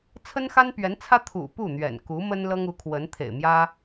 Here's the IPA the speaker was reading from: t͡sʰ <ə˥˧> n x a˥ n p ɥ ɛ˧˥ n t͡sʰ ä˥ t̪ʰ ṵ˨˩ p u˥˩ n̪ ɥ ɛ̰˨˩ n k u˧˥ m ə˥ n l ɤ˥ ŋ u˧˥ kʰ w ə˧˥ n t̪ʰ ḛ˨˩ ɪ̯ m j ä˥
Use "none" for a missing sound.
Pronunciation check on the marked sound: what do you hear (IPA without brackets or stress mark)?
ə˥